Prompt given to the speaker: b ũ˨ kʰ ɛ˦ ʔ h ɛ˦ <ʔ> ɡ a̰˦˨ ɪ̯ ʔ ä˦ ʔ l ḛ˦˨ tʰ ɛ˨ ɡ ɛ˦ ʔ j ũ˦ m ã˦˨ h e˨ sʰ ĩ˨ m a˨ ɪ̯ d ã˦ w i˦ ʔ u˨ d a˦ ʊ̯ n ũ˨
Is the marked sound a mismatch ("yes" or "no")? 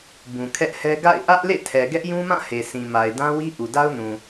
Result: yes